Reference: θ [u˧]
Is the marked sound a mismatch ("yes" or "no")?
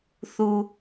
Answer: yes